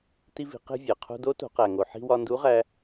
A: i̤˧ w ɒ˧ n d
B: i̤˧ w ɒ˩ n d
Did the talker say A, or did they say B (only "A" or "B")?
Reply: A